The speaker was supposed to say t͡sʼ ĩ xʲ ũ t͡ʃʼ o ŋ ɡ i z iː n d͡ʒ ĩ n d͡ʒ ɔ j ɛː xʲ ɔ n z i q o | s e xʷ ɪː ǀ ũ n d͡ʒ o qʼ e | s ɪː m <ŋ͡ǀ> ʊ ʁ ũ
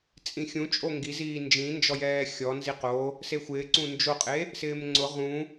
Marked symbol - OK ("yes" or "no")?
yes